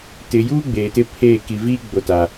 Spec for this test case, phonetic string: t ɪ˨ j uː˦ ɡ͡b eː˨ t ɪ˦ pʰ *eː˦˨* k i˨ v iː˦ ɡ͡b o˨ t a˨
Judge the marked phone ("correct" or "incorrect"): correct